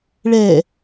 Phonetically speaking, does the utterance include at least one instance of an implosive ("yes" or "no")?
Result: no